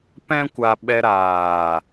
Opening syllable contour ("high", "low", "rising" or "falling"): high